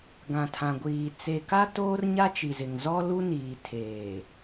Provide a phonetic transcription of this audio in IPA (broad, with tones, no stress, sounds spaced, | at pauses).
ɡ ã˨ tʰ ã˨ ɡʷ iː˨ t͡s e˨ k a˦ t oː˦ r ɲ a˦ t͡ʃ i˨ z ɪ˨ ŋ z ɔ˦ l u˦ n iː˨ tʰ eː˨